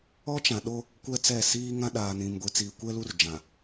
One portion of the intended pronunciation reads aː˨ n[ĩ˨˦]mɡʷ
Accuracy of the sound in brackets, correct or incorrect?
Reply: incorrect